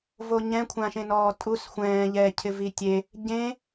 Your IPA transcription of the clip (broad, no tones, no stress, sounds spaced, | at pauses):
v o ɲ ɛ̃ kʷʰ ã ʃ ẽ n ɔː tʼ u s xʷ ɛ̃ː ʎ ɛ cʰ ɪ v i tʲ e | ɟ ẽ